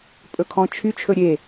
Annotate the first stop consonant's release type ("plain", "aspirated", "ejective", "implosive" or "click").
ejective